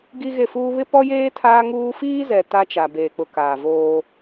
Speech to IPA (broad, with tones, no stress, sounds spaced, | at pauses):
ɡ i˦ ɣ e˦˨ f uː˦ β ɪ˦ p ɔ˦ j eː˦ tʰ aː˦ ŋ uː˦ f iː˦ z ɛ˨ t a˦ t͡ʃ a˨ b eː˨ k͡p ʊ˨ k aː˨ v oː˦